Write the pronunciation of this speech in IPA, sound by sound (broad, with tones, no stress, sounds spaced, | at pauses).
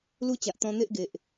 l u˦ t͡ɕ a˨ ʔ t̪ ɔ̃˧ n̪ e˦ ʔ ɡ e˨ ʔ